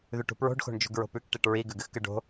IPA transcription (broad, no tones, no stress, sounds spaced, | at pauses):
ð ʉ ʈ ṳ p ɹ o̤ ɖ x o̤ ɳ d͡ʒ ṳ ɡ ɹ o̤ p ʉ k ʈ i ʈ ɹ i ɡ ʉ ɡ ɨ x k ɨ ɖ o̤